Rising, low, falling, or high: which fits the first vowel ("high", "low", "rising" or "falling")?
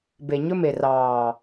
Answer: low